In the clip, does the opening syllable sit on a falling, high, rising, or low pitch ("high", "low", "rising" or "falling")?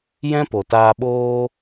high